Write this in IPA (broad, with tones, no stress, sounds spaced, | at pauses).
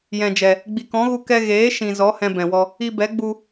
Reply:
j ɛ̃˨ d͡ʒ ɛ˨ | ɡ͡b i˨ k ɔ̃˨˦ ɣ u˧ k ɛ˧ ɣ eː˨˦ ʃ ĩ˨ z ɔ˨˦ h ɛ̃˧ b ɛ̃˨ w ɔ˧ | i˧ b ɛ˨˦ ɡ͡b u˧